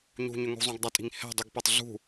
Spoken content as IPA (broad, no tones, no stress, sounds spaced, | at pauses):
ɲ ṳ ɲ ʏ ŋ ṳ zˤ ũ ɡ dˤ ʌ tʼ i̤ ŋ h ɛ̤ dˤ y ɡ p ɛ tˤ ɮ ṳ